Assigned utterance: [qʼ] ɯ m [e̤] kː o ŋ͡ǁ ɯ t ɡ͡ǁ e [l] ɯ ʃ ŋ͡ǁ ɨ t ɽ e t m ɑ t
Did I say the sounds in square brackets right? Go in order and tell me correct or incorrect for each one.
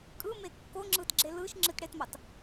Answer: incorrect, incorrect, correct

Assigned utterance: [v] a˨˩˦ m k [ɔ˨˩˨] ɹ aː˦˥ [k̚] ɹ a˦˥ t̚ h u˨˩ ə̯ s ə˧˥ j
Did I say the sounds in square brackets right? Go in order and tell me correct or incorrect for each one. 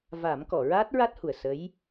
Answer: correct, correct, incorrect

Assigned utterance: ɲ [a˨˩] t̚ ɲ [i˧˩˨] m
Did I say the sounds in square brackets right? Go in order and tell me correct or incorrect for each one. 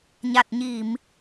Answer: correct, correct

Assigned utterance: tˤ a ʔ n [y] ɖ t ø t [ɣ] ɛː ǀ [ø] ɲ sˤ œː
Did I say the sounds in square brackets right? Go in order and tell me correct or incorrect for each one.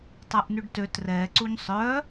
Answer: correct, incorrect, incorrect

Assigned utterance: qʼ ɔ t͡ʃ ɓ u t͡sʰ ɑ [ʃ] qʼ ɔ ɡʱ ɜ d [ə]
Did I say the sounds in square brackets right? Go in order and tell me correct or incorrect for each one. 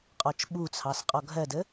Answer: incorrect, correct

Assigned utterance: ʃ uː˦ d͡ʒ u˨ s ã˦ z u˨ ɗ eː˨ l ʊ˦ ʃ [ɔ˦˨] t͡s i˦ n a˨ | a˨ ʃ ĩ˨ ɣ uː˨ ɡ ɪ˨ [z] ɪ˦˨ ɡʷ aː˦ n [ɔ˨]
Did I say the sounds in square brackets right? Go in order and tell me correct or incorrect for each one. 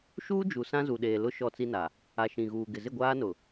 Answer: correct, correct, incorrect

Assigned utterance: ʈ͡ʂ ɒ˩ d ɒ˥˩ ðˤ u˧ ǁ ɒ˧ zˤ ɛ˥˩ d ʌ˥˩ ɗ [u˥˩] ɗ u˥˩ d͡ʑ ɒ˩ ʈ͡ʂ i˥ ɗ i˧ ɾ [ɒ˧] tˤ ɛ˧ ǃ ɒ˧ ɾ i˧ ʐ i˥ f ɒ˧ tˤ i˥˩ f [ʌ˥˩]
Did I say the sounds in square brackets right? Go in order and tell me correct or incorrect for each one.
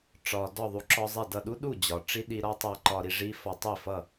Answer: incorrect, incorrect, correct

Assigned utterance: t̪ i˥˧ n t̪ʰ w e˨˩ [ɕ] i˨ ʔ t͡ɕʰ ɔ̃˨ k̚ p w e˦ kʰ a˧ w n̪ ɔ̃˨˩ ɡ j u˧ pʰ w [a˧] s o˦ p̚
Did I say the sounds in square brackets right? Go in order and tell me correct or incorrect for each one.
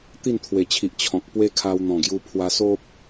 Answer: incorrect, correct

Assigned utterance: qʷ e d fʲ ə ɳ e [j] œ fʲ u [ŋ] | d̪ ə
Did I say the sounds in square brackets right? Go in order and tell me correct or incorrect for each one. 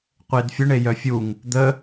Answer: correct, correct

